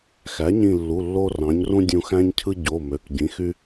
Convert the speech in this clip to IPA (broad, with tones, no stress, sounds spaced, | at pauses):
x æ˩˥ ɲ ĩ˧˩ lː u˩˧˩ lː o˦ r ɑ̃˩˥ ɲ r ũ˦ dʲ ũ˧˩ x æ̃˦ ɲ cʰ ɯ˦ ɟ o˩˧˩ m ø˩˧˩ k ɟ ĩ˩˥ x y˦